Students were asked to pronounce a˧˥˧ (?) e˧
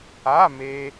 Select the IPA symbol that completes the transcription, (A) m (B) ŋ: A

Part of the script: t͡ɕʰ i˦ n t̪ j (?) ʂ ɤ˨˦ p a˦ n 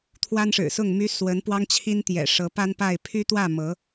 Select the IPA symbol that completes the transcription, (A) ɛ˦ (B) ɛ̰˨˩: B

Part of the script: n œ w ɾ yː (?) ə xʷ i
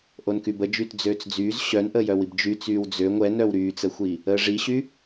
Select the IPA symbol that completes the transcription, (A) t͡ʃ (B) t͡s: B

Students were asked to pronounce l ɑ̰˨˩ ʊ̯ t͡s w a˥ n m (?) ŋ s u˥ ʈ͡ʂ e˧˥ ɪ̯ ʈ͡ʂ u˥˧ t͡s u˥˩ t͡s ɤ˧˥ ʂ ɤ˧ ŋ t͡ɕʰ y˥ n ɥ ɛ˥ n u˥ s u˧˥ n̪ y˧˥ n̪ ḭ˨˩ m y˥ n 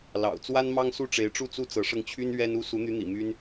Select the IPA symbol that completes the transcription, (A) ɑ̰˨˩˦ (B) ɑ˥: B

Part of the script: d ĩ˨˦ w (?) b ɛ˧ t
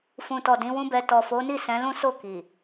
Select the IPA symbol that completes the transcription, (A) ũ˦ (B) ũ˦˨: A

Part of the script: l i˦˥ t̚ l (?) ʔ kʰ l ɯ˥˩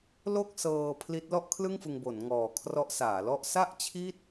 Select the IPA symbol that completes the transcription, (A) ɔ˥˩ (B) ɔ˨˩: A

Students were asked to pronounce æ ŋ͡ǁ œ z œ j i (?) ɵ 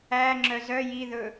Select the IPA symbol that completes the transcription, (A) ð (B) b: A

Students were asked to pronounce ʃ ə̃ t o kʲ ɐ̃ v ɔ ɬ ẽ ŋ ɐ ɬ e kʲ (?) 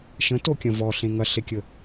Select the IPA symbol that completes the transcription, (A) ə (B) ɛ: A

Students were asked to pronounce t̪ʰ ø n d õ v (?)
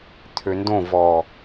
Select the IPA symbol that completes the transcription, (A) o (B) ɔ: B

